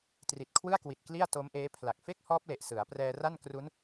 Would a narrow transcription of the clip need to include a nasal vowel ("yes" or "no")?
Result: no